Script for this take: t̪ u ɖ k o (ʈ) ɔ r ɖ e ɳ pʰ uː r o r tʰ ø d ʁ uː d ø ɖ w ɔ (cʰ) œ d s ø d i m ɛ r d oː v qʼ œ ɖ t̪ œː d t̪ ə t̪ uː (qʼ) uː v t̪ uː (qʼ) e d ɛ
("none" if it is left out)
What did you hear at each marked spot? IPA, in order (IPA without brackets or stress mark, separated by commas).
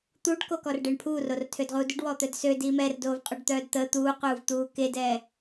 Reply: k, t̪, q, k